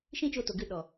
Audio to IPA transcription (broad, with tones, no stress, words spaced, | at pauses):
ʃĩ˦t͡ʃo˧to˨ɡɨ˦˨ ɗɔ˨